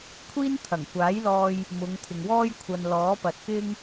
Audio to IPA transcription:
kʷʰ iː˥ n t̪ʰ ɐ˨˩ ŋ kʷ aː˨˥ j l ɔː˧ j | m ʊ˨˧ ŋ t̪ʰ ɪ˨ ŋ w ɔː˥ j kʷʰ ɐ˨ n l ɔː˨˥ p ɐ˨ t̚ k ɪ˥ ŋ

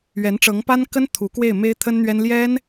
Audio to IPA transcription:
ɥ ɛ˧˥ n ʈ͡ʂ ɤ˧˥ ŋ p a˥ n k ə˥ n t̪ʰ u˧˥ k w e˥˩ ɪ̯ m e˥ ɪ̯ t̪ʰ ə˥ n n̪ ɥ ɛ˥ n l j ɛ˥ n

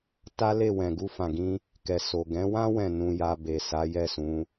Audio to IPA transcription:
t a˦ l e˦˨ w ɛ̃˨ ɡ u˧ f ã˨ ɡ ĩ˧ | k ɛ˨ s o˨ ɡ ɛ̃˨˦ w ã˦ w ɛ̃˦˨ n ũ˧ j a˧ b e˨ s a˨˦ j ɛ˦˨ s ũ˨˦

